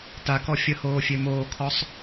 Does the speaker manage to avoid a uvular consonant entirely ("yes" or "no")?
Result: yes